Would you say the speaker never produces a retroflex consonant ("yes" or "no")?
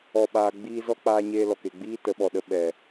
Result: yes